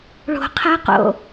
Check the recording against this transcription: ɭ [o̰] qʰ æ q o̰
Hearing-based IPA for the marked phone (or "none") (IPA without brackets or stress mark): o̤